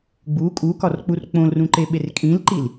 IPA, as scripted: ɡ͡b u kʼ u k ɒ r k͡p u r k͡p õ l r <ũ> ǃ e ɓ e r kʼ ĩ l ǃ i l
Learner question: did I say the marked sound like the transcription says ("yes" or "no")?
yes